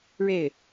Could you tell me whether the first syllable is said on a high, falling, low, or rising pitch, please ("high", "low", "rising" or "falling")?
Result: falling